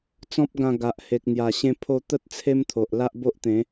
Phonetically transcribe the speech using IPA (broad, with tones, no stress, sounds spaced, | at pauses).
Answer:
t͡s ɔ̃˦ p̚ ɡ ã˧ ɡ a˨ ʔ h e˨ k̚ n̪ j a˨˩ ɕ ẽ˧ pʰ o˧ t̪ ə˦ t̚ t͡sʰ e˦ m t̪ʰ o˨ ʔ l a˦ ʔ b o˦ ʔ t̪ ẽ˨˦